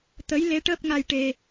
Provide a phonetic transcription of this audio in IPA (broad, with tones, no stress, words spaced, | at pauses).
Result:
t̪ə˧˥j le˧˥ʈəː˦˥p̚ŋa˧j ʈe˧